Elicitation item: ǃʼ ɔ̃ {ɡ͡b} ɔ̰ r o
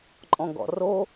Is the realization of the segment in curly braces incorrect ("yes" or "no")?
yes